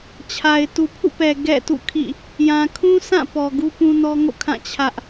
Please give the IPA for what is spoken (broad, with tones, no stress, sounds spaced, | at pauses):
t͡ɕʰ a˨ ɪ̯ t u˨ pʰ ṵ˦˨ p ɛ˨ ɡ ɛ̰˦˨ t ṵ˦˨ kʰ ḭ˦˨ | j ã˨ kʰ ũ˦ sʰ ã˦˨ p ɔ˨ ɡ u˦ p ũ˦ n ɔ˦ ŋ o̰˦˨ kʰ ã˦˨ t͡ɕʰ ä˦ ʔ